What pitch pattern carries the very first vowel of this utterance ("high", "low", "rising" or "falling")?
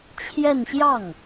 falling